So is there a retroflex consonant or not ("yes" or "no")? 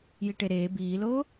yes